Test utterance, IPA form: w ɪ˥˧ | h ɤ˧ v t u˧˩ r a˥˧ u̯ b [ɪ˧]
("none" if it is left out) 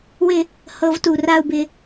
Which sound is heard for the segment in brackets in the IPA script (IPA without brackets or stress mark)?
ɪ˧